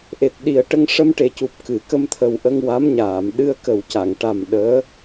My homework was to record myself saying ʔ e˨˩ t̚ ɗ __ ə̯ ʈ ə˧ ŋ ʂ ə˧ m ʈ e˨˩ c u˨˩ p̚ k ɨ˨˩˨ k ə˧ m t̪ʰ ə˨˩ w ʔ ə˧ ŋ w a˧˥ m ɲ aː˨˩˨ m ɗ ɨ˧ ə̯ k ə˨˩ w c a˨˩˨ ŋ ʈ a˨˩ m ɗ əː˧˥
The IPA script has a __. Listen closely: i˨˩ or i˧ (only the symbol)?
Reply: i˨˩